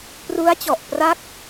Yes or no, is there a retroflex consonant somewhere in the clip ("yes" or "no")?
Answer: no